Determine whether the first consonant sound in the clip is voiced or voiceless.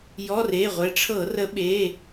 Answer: voiced